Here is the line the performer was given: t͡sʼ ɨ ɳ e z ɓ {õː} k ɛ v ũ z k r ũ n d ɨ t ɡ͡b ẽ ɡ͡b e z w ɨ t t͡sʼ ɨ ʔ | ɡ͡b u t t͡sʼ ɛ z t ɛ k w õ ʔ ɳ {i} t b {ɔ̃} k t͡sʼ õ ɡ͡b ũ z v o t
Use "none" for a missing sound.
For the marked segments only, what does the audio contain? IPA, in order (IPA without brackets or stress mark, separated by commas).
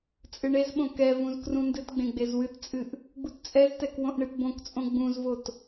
õ, ɨ, õ